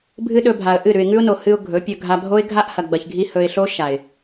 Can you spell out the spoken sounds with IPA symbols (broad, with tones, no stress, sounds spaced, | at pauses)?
bʱ ɨ˦ ɗ ɵ˧ bʱ a˨ ə̯ ʔ ɨ˦˨ ɾ ʉ˨ ɪ̯ ŋ ʉ˦ ʊ̯ n o˨ h ɨ˧ ʊ̯ ɡʱ ɵ˨˦ pʲ ɵ˧ ɡʱ a˧ bʱ o˦ ɪ̯ ɡʱ a˦ ʔ h ɐ˨ ɡ͡b ɐ˨ ç ɡʱ i˧ h ɵ˨ ɪ̯ ɬ o˦ ʃ a˨ ɪ̯